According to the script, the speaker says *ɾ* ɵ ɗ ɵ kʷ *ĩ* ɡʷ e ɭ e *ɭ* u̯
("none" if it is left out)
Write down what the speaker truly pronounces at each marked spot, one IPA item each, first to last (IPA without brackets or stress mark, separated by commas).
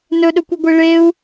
n, i, none